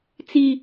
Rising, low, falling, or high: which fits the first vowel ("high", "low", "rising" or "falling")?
high